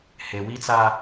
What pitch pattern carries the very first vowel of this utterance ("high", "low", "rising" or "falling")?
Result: low